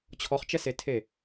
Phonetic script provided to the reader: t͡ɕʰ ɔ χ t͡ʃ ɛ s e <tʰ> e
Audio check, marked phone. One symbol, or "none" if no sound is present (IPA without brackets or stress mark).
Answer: tʰ